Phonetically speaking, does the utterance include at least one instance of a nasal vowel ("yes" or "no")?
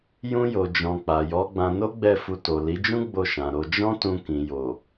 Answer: yes